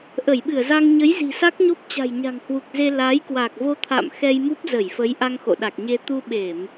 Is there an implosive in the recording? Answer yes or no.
yes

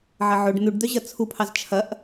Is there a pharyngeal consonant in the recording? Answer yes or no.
yes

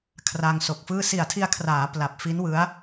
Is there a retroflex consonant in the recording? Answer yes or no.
no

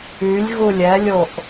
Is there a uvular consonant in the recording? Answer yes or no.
no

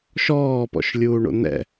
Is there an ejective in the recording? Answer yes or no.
no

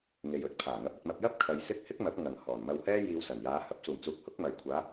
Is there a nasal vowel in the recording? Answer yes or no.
no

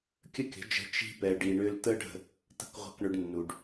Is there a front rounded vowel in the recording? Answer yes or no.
yes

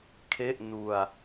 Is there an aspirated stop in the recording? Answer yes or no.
yes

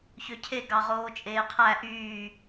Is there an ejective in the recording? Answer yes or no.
yes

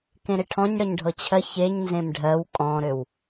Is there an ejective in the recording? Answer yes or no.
yes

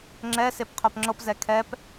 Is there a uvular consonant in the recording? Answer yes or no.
yes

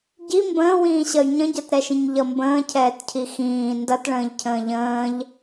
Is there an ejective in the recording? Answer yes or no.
no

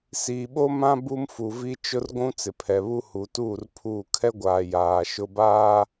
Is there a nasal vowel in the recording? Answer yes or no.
yes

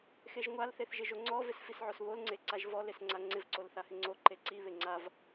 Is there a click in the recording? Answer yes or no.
yes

